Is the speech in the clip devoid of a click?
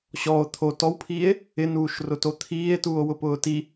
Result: yes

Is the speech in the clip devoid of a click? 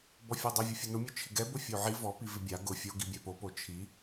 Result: yes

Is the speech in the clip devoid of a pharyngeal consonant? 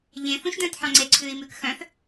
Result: no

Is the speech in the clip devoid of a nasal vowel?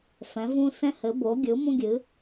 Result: no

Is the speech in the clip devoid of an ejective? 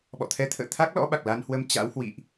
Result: yes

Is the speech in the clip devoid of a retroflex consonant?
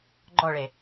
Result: no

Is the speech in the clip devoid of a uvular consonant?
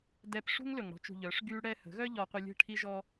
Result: no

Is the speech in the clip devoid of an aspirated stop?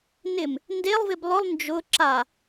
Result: yes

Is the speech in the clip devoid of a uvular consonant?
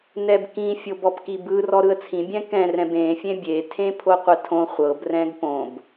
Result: no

